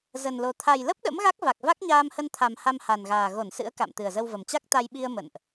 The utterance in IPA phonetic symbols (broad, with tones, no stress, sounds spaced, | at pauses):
z ə˨˩ n l o˨˩ t̪ʰ a˨˩ j l ə˦˥ p̚ ɗ ə̰˧˥ m ɣ a˦˥ k̚ v a˨˩ k̚ v a˦˥ k̚ ɲ aː˧ m h ə˧ n t̪ʰ a˨˩ m h a˧ m h a˨˩ n ɣ aː˨˩ ɣ o˧˩ n s ɨ̰˧˥ ə̯ k a̰˧˨ m t̪ ɨ˨˩ ə̯ z ə˧ w v ə˨˩ m t͡ɕ a˦˥ k̚ t̪ a˧ j ɓ i˧ ə̯ m ə̰˧˨ n ʔ